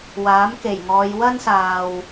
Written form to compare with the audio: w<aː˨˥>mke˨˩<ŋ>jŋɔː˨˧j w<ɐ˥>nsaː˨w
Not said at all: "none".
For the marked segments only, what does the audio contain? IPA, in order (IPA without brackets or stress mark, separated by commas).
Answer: aː˨˥, none, ɐ˥